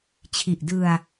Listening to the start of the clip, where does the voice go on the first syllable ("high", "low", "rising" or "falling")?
low